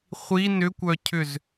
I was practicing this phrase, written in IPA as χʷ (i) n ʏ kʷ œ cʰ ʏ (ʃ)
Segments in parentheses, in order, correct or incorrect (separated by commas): correct, incorrect